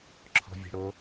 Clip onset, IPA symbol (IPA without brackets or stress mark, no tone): ǁʰ